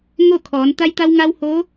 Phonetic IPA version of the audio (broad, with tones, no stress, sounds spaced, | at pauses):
ŋ o˥˨ kʰ ɔː˩˧ n t̪ a˧ j t̪ a˧ w ŋ a˧ w h oː˧˥